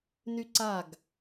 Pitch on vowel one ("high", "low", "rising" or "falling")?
high